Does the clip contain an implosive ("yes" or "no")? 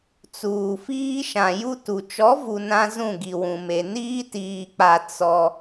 no